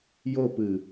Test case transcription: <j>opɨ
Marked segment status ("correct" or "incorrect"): correct